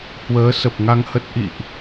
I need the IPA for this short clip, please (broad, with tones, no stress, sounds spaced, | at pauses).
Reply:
h w əː˨˦ s ə˨˩ p̚ ŋ a˧ ŋ h ə˦˥ t̚ ʔ ḭ˧˨ ʔ